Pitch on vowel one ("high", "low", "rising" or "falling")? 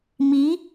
rising